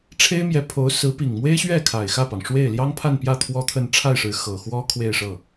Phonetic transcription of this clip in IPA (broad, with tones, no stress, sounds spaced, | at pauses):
ʈ͡ʂʰ e˥ ɪ̯ m j ɛ˧˥ pʰ o˧˥ ʊ̯ s ɹ̩˧˥ p i˨˩ ŋ m w e˥ ɪ̯ ɕ ɥ ɛ˥˩ kʰ a˨˩ ɪ̯ x ä˥˩ p ɑ˩ ŋ ʂ w e˥˩ ɪ̯ l j ɑ˥ ŋ pʰ a˥˧ n p j ä˥˩ t̪ʰ w ɔ˥ t̪ʰ ə˥˧ n ʈ͡ʂʰ a˥˩ ɪ̯ ʂ ɻ̩˧˥ x ɤ˨˩ x w ɔ˥ kʰ w e˥˧ ɪ̯ ʂ ɤ˥˩